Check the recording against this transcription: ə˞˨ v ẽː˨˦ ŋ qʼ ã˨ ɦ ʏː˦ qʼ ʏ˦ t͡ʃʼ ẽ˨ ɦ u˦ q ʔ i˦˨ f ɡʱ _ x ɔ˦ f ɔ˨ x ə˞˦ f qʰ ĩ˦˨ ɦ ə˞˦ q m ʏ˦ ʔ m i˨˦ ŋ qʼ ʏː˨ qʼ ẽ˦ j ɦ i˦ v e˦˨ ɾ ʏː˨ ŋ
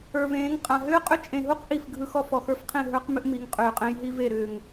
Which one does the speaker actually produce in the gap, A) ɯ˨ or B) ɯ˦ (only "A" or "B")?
B